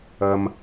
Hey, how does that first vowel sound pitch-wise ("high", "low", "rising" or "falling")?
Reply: low